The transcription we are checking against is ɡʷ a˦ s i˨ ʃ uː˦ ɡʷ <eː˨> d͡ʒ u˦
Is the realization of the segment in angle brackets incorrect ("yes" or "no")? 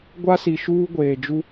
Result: no